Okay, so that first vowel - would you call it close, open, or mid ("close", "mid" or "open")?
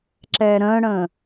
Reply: mid